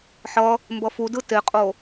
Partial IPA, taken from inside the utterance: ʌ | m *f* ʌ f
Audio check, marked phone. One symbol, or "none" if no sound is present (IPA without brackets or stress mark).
b